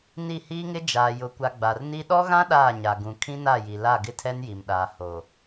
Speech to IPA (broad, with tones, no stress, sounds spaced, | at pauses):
n i˦˨ h iː˦ ŋ ɪ˦ d͡ʒ aː˨ j ʊ˨ kʷ a˨ ɡ͡b a˨ r n i˦ ɗ ɔ˦ ɣ ã˦ ɗ aː˦˨ ɲ a˨ ɡ ũ˨ kʰ ĩ˦ n a˦˨ j i˨ l a˦˨ ɡ ɪ˦ tʰ ɛ˦ n j i˨ m ɗ aː˨ h oː˨